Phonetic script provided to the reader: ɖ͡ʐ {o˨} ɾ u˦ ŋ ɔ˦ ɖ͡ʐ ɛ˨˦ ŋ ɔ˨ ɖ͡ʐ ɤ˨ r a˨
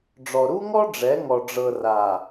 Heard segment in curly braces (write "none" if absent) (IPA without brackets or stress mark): ɔ˨